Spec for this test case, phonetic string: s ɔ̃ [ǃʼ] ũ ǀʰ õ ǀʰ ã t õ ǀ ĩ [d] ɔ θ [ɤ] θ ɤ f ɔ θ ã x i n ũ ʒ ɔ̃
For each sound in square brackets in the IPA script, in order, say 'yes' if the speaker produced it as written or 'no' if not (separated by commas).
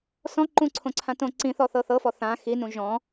no, no, yes